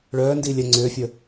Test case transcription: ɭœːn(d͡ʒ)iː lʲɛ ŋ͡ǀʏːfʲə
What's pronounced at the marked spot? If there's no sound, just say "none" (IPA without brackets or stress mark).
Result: d